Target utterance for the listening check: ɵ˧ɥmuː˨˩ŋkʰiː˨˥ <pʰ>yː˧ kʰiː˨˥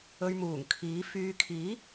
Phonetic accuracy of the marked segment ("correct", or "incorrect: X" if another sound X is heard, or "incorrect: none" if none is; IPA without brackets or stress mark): incorrect: f